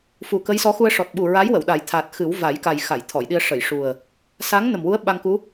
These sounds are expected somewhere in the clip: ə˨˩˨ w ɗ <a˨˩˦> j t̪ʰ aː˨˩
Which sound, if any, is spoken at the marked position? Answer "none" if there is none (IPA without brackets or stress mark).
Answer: a˨˩˦